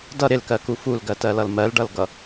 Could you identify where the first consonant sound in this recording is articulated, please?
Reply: alveolar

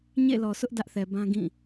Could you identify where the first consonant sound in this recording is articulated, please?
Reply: palatal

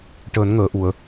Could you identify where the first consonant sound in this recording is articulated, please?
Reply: retroflex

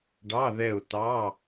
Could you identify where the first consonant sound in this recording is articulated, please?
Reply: retroflex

